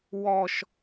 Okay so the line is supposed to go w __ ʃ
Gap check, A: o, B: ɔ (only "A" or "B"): B